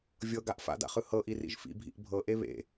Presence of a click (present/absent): absent